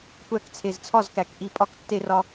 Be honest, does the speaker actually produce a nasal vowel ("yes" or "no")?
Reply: no